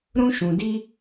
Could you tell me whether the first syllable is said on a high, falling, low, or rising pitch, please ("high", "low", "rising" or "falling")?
high